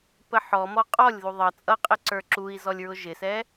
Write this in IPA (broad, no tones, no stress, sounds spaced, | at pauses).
p ə ħ ɔ m ɔ qʼ ɔ lʲ ð u ðˤ ʌ t͡sʼ ʌ qʼ ɪ ǀ ə˞ ǁ u i̯ z ɔ lʲ ɹ ʊ ʒ ɪ s ɛ